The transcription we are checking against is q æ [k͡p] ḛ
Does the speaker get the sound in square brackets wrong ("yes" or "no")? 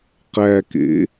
yes